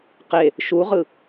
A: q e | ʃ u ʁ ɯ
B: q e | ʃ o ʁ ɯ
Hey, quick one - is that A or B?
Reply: A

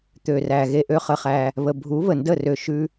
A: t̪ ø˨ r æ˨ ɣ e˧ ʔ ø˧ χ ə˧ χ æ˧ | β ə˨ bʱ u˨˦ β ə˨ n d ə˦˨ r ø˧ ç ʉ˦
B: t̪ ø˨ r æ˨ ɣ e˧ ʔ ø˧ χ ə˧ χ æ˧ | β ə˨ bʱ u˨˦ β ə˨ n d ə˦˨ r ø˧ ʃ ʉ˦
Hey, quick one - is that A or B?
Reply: B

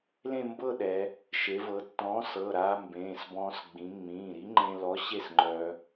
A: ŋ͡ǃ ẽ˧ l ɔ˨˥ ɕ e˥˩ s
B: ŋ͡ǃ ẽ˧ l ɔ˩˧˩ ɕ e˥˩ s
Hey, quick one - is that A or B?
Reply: A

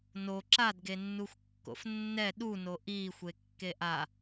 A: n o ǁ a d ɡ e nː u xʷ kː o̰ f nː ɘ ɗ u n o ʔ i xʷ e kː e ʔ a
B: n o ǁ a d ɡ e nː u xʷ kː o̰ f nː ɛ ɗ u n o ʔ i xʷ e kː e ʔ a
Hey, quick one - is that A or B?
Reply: B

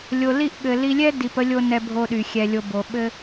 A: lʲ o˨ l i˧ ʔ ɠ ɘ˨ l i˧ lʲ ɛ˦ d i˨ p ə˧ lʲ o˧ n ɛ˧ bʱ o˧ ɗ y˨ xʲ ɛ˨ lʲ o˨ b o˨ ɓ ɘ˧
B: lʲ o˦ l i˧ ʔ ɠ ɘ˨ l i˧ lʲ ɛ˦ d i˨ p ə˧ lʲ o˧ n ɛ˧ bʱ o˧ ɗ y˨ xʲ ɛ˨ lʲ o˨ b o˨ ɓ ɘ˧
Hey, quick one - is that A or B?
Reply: A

